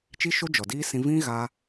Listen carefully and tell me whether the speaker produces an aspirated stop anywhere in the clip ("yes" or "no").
no